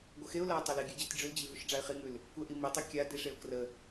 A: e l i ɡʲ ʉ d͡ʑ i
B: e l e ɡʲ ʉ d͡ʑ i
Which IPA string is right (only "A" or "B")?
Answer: A